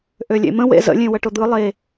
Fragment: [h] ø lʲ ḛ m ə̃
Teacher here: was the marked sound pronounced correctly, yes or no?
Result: no